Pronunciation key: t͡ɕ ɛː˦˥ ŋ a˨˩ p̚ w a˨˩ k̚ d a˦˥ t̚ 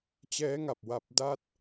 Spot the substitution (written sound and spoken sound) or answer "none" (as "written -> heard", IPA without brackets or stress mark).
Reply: k̚ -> p̚